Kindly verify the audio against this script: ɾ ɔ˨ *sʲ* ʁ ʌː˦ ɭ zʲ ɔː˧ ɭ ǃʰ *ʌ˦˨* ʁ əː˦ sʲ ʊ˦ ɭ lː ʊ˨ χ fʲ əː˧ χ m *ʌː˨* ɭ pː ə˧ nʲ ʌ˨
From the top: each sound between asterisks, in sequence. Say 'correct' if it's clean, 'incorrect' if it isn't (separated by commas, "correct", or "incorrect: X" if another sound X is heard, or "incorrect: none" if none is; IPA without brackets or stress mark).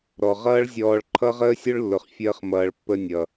incorrect: none, incorrect: ʌ˦, correct